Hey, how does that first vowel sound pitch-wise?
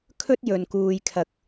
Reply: high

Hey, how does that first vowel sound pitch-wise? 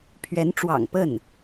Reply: rising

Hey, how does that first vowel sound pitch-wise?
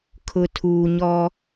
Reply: low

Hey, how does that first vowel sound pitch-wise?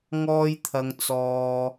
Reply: high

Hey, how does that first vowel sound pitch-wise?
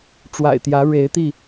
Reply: low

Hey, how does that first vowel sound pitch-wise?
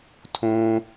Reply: high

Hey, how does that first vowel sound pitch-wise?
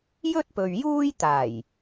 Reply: high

